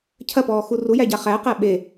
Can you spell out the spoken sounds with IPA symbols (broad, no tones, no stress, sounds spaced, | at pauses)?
cʰ ɐ p ɔː x u r u j æ ɟ a χ æ q æ ɓ e